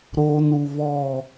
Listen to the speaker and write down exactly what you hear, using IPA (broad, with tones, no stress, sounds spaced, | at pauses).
ɾ oː˨ n u˨ β ɔ˦˨